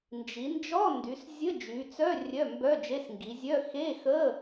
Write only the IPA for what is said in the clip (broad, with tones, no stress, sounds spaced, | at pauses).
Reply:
n d͡ʒ i˩˧ n d͡ʒ ɔ˧˥˧ n d y˩˧ s zʲ ə˧˥˧ d͡ʒ y˩˧ t͡s œ˧˥˧ rʲ œ˧˥˧ m b œ˧˥˧ d͡ʒ e˧˥˧ s ŋ ɡ i˩˧ zʲ œ˧˥˧ x e˧˥˧ x ə˧˥˧